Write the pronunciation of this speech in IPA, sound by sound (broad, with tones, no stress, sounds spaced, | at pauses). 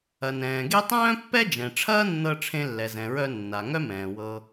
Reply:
ɐ˩ n ɛ̃ː˩ ɡ e˥ tˤ œ̃ː˥ pː ɛ˥ d͡ʒ ɛ̃˩ ʈ͡ʂʰ ɐː˥ nː ɤ˧ ʈ͡ʂʰ ẽ˧ lː ɛ˩ z ɛ̃˩ ɹ œ˧ nː a˩ ŋ œ˥ m ɛ̃ː˩ w ɤ˧